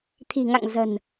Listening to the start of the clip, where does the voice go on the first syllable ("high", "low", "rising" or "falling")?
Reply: low